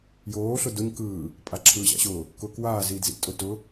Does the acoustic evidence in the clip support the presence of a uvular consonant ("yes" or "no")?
no